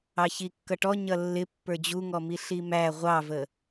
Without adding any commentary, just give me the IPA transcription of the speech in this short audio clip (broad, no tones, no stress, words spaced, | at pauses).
ɑçikːʌʈɔ ɲʌlːɪ pːə˞d͡ʑuŋɔ miɬimæ ʁʷɑvə